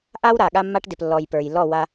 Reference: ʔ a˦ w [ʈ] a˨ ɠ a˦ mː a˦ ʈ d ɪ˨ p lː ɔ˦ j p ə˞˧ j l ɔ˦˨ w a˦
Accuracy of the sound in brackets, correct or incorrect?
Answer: incorrect